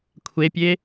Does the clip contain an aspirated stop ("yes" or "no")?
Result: yes